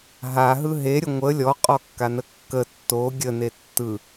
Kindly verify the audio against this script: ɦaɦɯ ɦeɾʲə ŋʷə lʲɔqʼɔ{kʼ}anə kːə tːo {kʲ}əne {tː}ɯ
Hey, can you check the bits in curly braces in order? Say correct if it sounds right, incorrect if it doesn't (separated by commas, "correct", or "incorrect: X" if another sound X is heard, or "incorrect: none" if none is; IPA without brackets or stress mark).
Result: incorrect: kː, incorrect: ɡʲ, correct